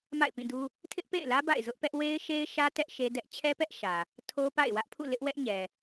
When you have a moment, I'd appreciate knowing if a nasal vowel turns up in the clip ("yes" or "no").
yes